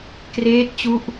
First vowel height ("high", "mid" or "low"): mid